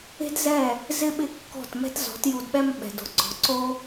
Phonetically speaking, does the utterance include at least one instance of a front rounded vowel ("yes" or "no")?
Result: no